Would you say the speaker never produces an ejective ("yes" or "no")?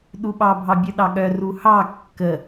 yes